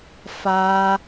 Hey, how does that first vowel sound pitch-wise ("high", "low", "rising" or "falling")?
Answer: high